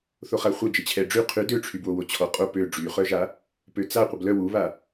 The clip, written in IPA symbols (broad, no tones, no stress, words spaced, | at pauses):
θoχaχʷœ d͡ʒət͡ɕʰɛɖ͡ʐy qʰy døʈ͡ʂʰybwowo t͡ɕʰɔqʼo pø ɖ͡ʐyχœʒa | pøt͡sa qʷəblœ wuβa